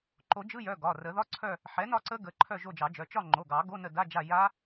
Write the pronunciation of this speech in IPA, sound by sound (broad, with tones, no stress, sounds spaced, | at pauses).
ǃ o˨˩˦ d͡ʒ ɯ˧˥˧ j œ˩˧˩ ɡ ɒ˩˧˩ r ə˨˩˦ ð ɒ˧˥˧ ǀʰ œ˦˨ | ħ ɛ˩˥ n ɒ˦˨ ǀ ə˦˥ ɡ ə˩˧˩ ǃʰ œ˦˨ ʒ o˦˨ d͡ʒ ɑ˨˩˦ d͡ʒ œ˩˧˩ t͡ʃ ɒ˦˨ ŋ͡ǃ o˩˧˩ ɡ ɑ˨˩˦ ɡ o˧˥˧ n ə˦˨ d a˧˥˧ d͡ʒ a˦˨ j a˦˥